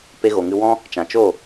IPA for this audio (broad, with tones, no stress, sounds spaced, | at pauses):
p e˧ ɣ o˨ ŋ ɨ˧ w ɔ̃˦ | t͡ʃ ã˨ t͡ʃ o˦˨